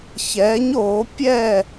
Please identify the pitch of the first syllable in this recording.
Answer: rising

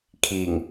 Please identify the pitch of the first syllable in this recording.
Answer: low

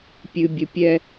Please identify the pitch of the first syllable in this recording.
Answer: low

